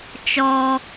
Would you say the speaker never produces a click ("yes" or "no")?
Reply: yes